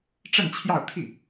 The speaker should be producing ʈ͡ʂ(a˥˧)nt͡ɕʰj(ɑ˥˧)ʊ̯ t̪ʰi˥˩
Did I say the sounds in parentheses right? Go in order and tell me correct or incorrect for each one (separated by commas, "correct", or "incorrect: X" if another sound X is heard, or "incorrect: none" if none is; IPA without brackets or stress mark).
incorrect: ə˥˧, correct